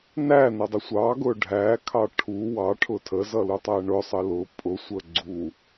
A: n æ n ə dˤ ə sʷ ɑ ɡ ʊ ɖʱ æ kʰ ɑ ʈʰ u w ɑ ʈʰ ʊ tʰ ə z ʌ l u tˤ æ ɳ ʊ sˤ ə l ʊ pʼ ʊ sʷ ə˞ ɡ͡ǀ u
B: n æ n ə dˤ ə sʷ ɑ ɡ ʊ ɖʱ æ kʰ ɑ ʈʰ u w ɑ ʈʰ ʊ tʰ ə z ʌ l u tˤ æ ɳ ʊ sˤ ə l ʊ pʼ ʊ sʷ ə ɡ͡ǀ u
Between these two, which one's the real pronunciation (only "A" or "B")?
B